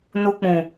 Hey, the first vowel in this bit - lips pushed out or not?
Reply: yes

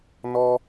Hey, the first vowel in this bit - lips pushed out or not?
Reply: yes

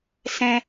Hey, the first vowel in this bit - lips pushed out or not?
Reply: no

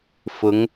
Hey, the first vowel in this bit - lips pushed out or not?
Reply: yes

